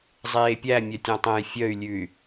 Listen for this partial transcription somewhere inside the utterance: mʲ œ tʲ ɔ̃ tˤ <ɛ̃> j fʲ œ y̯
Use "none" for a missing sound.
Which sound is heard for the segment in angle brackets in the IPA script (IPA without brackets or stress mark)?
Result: ɛ̃